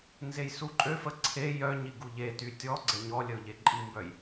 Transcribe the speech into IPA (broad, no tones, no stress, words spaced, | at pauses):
nzejsuǃʼøfə ǀʰe jœ ɲiɡuʎety tʲɔ ɡ͡ǀɛɲɔlʲəʊ̯ ʎeǃʼimbœj